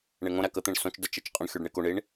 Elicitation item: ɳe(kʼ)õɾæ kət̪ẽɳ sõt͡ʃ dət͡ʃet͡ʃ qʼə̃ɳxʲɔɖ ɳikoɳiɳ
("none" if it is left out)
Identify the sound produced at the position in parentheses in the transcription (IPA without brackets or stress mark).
ŋ